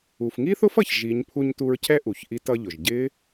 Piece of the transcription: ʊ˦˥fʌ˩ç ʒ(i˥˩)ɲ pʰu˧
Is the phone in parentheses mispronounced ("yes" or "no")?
yes